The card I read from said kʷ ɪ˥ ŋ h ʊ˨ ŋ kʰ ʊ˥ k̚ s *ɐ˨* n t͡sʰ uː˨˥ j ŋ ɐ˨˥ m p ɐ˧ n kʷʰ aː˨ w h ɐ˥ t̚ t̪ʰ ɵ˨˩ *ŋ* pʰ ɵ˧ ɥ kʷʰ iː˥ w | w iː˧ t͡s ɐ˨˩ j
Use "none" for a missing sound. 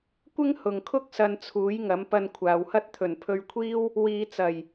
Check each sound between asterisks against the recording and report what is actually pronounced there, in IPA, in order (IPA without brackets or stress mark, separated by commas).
ɐ˧, n